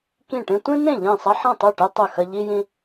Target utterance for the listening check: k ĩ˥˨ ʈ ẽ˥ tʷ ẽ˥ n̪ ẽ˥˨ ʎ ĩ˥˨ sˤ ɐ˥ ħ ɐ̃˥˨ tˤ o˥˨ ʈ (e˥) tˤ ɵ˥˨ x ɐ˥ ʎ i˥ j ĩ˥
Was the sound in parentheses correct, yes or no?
yes